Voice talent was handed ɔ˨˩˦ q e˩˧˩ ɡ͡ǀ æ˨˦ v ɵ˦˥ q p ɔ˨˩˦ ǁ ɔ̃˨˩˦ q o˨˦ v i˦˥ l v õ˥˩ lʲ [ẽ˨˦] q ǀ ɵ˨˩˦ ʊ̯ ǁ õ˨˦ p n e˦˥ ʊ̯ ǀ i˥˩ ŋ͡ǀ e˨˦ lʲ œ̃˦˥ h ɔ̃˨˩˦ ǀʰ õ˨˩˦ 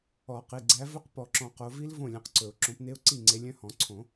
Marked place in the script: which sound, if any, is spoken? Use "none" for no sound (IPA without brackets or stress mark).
ẽ˨˦